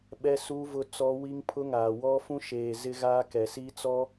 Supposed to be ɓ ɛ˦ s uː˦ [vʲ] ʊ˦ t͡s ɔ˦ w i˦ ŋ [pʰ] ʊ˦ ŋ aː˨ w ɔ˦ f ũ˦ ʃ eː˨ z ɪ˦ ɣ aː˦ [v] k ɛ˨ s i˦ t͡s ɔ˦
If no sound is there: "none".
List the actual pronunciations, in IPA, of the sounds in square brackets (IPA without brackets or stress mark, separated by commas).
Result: v, pʰ, none